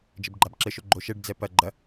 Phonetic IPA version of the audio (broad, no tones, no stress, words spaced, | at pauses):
d͡ʒɘbɡ͡ǃabǁɘʃo ɡ͡ǃoʃɛɖd͡zɛ pɐ ɡ͡ǃɐ